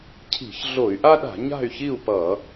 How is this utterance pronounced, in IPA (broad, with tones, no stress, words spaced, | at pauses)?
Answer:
cʰi̤˧˩˧çɮo˧˩˧y̯ʔa˥ɗa̤˧˩˧ ɲa̤˥˨y̯çi˥˨u̯pʌ˧˩˧